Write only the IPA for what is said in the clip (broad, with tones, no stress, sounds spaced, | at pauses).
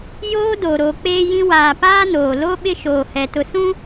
j oː˦ d o˨ ɾ o˨ k͡p eː˦ j ĩ˦ w aː˨ p aː˦ n oː˨ l o˦ ɓ ɪ˦ ʃ oː˨ h ɛ˨ t ʊ˨ s ũ˦